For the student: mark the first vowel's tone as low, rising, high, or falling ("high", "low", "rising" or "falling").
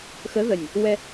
rising